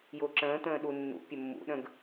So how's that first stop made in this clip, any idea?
click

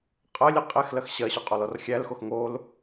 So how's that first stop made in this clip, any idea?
ejective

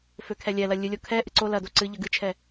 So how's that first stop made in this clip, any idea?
aspirated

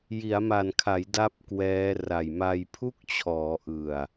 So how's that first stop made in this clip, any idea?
aspirated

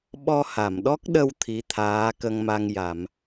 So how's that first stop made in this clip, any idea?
implosive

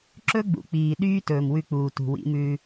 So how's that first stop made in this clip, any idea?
click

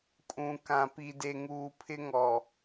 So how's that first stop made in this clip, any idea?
ejective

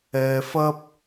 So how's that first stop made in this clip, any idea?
plain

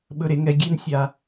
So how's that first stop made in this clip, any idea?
implosive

